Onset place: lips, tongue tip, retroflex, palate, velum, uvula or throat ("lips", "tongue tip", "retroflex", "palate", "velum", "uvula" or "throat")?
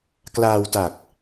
velum